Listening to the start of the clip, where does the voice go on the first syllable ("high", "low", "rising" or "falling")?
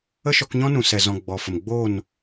high